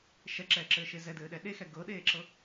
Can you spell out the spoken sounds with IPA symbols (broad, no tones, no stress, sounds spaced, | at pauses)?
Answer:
ʃ ɛ ǁ ɛː ǁ ɘː ʃ e z ɛ d ɘː ɗ ɛ ɗ e x ɛ ɡ ɤ ɗ eː ǁ ɤ